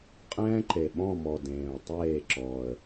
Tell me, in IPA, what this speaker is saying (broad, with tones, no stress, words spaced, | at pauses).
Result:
qʼɛ̃ː˦ǃe˨˩ɓɔ̃˦˨mɔ˨˩ dẽː˨˩ʊ̯ tˤeː˦˨ǁɔ˨˩ə̯